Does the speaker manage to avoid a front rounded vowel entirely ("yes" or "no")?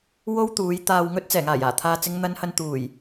yes